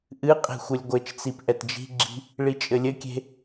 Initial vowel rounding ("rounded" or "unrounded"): unrounded